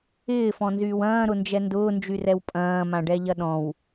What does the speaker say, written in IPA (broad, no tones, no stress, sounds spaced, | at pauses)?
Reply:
ɪː f ɔ̃ n z yː w ɐ̃ː ɾ ʊ n d͡ʒ ɛ n d ʊː n d͡ʒ y r ɛ w pʼ ɐ̃ː m ã ɖ ɛ ʎ ɐ ɗ ɔ̃ w